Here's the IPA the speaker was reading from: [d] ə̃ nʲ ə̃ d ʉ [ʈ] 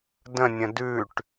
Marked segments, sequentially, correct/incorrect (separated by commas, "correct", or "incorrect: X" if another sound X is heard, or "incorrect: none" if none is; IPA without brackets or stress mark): correct, correct